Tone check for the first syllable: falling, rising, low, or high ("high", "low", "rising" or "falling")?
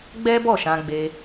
high